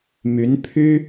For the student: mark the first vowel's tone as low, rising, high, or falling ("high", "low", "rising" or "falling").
rising